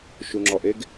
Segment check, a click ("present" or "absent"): present